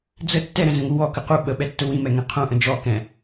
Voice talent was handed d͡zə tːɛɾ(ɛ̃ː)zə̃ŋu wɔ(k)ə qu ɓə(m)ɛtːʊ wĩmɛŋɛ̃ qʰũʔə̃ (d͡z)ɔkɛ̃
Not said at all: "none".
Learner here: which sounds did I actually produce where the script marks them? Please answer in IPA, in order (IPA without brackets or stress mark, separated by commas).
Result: ɛ̃, k, ɓ, d͡ʒ